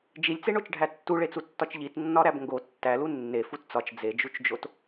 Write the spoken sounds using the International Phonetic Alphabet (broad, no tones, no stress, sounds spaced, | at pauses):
d͡ʒ i lʲ t͡s e ɳ o t͡ʃ ɖʱ æ tː u ɭ e t͡s u tː ɒ t͡ʃ ʎ i t nː ɒ ɾ æ b ŋ ɡ o tː æ l u nː e f u t t͡s ɒ t͡ʃ d͡z e d͡ʒ u t͡ʃ d͡ʒ o t